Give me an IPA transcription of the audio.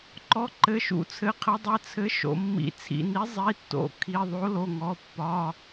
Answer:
ǃ ɔ˨˥ ǃ ɘ˩˧˩ ʃ ṵ˨˥ t͡sʰ ɘ˩˧˩ qʰ ɘ˨˥ dˤ ɘ˩˧˩ t͡sʰ ɘ˨˥ ʃ o̰˩˧˩ mː ḭ˨˥ t͡sʰ ḭ˩˧˩ n i˨˥ zˤ i˩˧˩ tː o̰˩˧˩ kʰ i˩˧˩ ðˤ o˨˥ l o˩˧˩ ŋ ɔ˩˧˩ pː ɒ˩˧˩

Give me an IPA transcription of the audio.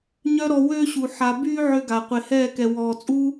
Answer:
ɲ œ˦ ɾ ɔ˧ w øː˦ ɕ u˨ ħ a˧ b yː˦ ʕ ø˦ ɡ a˨ qʷ e˨ h ɛː˦˨ k ɛ˨ w ɔː˨ t͡sʼ u˦

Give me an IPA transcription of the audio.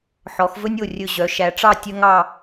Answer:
ħ ɔ˩˧ x v ɵ˥ nʲ o˧˩ rʲ ɵ˧˩ ʑ œ˩˧ ʃ æ˩˧ ʈ͡ʂ ɑ˥˧ tʲ œ˥ ŋ ɑ˥˧

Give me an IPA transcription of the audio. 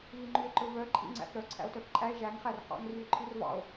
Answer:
β i ŋ͡ǃ ʉ e̯ ǃ ɵ v œ ǃʼ ḭ ŋ͡ǀ æ̰ f ɾ œ ǀʰ æ̰ o̯ t œ f ǃʼ æ e̯ ʒ æ ŋ χ æ r χ ɑ̰ ŋ r y e̯ ǃʰ ʉ r v ɑ̰ o̯

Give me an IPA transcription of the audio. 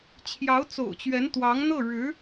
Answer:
t͡ɕʰ j ɑ˧˥ ʊ̯ t͡s o̰˨˩ ʊ̯ t͡ɕ ɥ ɛ˧˥ n t̪ w ɑ˧˥ ŋ n̪ ɤ˥˩ ɻ ɻ̩˧˥

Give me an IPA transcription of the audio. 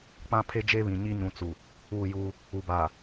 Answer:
k͡p ã˦ pʰ e˦ d͡ʒ e˦ β ĩ˨ ɲ i˦ ɲ ũ˨ t͡s u˨ | uː˦˨ j uː˦ | u˨ b aː˨

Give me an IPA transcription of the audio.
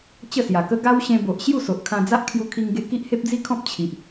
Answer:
t͡ɕ ə˥˧ s j a˨˩ k ə˦ ɡ a˦ w ɕ ẽ˧ b o˨ ʔ ɕ j u˥˧ s o˨ ʔ kʰ ã˧ d͡z a˦ ʔ kʰ j u˧ kʰ i˧ ŋ ɡ e˧ k i˦ ʔ h e˦ p̚ d͡z i˦ kʰ ɔ̃˦ p̚ t͡ɕʰ i˨ ʔ

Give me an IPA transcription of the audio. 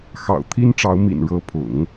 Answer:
x ɑ̰˨˩ ʊ̯ t̪ʰ i˥ n ʈ͡ʂ ɑ˧˥ ʊ̯ m ḭ˨˩ n ɻ ɤ˧˥ pʰ ʊ̰˨˩˦ ŋ

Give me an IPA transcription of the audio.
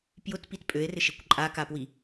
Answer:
p j ʊ t p i t pʼ ø e̯ r ɪ ʃ e kʷ ǃʼ a k a p w i

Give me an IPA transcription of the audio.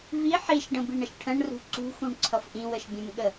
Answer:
v i ħ i ʃ ɖ ə̃ b i ɳ ə ʃ ʈʰ ə̃ ɳ r ṳ ǀ ṳ x ũ ɳ ǀʰ ʌ f ʔ ĩ w ə ʃ bʲ ə̃ m ɠ ə

